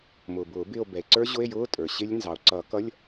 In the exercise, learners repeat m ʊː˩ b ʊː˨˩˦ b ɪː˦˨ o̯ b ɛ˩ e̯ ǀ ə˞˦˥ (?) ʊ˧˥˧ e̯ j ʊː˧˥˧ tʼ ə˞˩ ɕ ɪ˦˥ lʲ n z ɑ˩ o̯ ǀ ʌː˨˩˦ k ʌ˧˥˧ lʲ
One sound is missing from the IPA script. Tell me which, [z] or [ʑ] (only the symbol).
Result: ʑ